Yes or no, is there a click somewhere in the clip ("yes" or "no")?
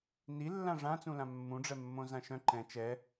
yes